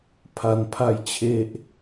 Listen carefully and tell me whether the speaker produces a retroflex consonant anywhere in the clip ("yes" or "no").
no